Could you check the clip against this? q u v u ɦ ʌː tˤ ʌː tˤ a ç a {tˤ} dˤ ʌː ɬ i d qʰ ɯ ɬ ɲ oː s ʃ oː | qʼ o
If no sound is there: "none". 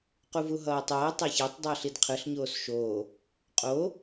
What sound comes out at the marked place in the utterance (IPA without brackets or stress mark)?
tˤ